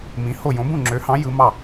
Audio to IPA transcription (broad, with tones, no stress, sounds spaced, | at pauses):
m ĩ˨˥ h o˥˩ j õ˨˥ b ũ˥˩ ŋ͡ǁ ø˨˥ h ɑ̃˨˥ j ɯ˨˥ m ɑ˥˩